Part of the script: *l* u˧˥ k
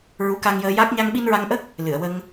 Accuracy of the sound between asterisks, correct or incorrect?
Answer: incorrect